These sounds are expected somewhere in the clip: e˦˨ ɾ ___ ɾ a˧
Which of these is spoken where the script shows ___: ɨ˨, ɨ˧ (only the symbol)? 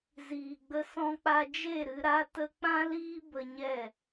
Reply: ɨ˧